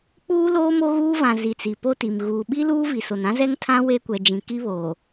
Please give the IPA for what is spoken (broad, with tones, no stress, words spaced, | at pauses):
k͡puː˦loː˦ mo˦ɣuː˦vã˨ zi˨t͡si˨ po˦ti˨m ɣuː˨ɓi˦ luː˦ vi˨so˨n ã˦zɛ˦ŋtʰã˦ we˦kʷɛ˨d͡ʒĩ˨ ki˦βoː˨